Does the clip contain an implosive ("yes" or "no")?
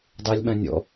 yes